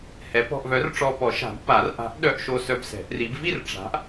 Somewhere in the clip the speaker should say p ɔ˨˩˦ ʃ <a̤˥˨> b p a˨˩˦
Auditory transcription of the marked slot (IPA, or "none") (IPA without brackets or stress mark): a̤˨˩˦